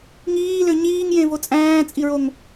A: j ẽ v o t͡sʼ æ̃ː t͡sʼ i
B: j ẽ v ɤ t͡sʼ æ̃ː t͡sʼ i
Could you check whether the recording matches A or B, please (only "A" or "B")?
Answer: A